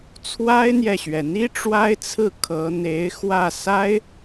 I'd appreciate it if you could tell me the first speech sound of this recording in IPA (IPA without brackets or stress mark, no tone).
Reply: t͡sʰ